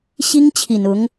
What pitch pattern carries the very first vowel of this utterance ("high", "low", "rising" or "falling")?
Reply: high